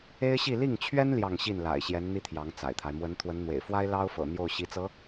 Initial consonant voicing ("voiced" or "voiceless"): voiceless